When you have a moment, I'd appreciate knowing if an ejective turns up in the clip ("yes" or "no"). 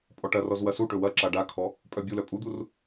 yes